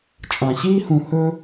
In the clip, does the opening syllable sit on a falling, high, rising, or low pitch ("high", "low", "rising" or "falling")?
low